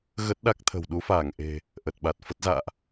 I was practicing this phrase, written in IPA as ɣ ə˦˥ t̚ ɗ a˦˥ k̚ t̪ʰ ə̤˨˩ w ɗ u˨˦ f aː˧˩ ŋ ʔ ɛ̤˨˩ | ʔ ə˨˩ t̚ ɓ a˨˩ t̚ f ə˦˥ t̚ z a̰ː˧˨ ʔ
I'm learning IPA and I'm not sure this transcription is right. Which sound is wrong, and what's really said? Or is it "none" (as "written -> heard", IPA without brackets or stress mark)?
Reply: ɛ̤˨˩ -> e̤˨˩